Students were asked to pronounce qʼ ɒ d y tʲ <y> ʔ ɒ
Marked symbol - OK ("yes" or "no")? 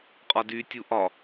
no